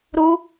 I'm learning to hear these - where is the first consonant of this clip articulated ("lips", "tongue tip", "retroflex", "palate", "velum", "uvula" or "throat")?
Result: tongue tip